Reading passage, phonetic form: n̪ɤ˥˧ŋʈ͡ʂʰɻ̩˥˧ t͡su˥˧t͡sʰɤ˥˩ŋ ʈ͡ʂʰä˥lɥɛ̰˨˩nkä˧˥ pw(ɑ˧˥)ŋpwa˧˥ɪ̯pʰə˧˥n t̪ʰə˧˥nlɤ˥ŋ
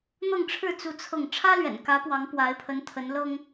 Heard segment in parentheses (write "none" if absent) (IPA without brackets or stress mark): ɑ˧˥